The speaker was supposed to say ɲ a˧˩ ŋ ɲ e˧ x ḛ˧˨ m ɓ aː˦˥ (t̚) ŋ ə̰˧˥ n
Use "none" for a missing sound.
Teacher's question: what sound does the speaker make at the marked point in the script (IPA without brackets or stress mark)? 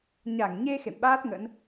t̚